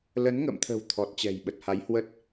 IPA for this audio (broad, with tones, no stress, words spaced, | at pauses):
lə˨˦nŋə̰˧˨mt̪ʰə̤˨˩w t̪ʰɔ˨˩t̚t͡ɕɛ̤˨˩jɓə˨˩t̚ ha˨˦jhwə˦˥t̚